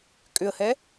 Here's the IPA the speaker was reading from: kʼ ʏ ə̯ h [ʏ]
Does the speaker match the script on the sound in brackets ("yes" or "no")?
no